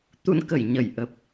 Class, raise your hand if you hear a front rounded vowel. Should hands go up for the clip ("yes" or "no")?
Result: no